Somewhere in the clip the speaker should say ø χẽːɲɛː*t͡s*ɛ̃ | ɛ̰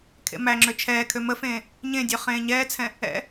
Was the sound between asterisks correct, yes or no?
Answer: no